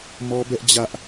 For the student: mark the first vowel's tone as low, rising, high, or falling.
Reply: high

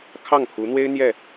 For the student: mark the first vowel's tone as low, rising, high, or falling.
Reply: falling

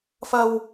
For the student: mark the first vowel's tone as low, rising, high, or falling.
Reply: high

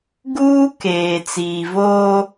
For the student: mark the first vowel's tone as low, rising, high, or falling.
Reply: high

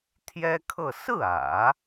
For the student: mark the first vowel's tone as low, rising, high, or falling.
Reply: high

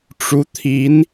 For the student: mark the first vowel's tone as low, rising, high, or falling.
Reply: rising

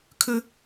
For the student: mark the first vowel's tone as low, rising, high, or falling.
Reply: high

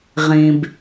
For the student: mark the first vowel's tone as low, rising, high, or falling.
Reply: low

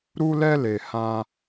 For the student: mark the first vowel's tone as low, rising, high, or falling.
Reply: high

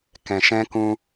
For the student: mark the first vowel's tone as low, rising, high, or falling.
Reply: low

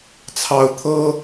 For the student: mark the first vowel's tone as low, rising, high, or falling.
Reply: rising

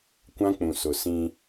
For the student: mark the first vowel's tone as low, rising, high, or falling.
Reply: high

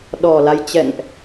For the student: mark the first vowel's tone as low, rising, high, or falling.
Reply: low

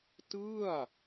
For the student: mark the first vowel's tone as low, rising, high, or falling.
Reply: falling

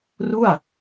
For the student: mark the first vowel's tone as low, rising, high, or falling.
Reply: falling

